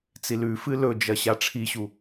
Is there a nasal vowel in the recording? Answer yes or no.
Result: no